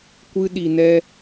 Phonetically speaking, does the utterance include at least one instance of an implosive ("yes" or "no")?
yes